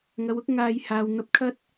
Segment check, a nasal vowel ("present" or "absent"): absent